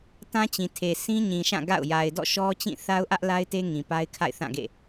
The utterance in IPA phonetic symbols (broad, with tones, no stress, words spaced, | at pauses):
tã˦t͡ɕĩ˨tʰe˨ sʰĩ˦ɲĩ˨ʃã˦˨ ɡa̰˦˨ʊ̯ ja˨ɪ̯dɔ̰˦˨ʃɔ˦ t͡ɕĩ˦˨θa˦ʊ̯ ʔä˦ʔ la˦ɪ̯te˦ ŋĩ˨pa˦ɪ̯ kʰa̰˦˨ɪ̯θã˦˨ɡḛ˦˨